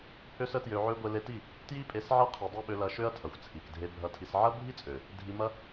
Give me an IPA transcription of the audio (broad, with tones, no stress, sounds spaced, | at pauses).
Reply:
h ø˦ s ə˦ t j ø˧ ʕ ø˦ ɡʷ e˧ l e˧ t i˦˨ | t j i˦ pʼ e˧ s ʕ e˦ qʰ i˧ dˤ ə˦ ɓ ø˧ l ɐ˧ ʃ ø˦ ɐ̯ tʰ ɐ˨ xʷ t͡sʰ i˨ k dʱ e˧ bʱ ɐ˧ tʰ i˧ s ʕ ɐ˦ bʱ i˦ t͡sʼ ø˨ | dʱ i˧ m ɐ˦